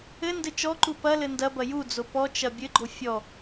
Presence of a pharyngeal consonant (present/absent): absent